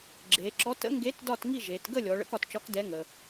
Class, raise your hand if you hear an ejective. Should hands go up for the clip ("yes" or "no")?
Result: no